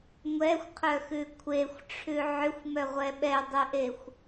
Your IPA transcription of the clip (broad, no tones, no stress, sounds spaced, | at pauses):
ŋʷ ɛ xʷ qʰ œ x ʉ kʷʰ e xʷ ʈ͡ʂʰ ʉ ʕ ʏ xʷ m œ ʁʷ ɛ ɓ ɛ dˤ ʉ ʔ e xʷ